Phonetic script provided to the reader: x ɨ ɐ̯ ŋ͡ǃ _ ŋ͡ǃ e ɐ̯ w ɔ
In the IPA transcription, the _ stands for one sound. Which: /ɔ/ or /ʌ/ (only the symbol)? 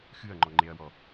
ɔ